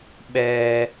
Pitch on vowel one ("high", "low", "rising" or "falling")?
high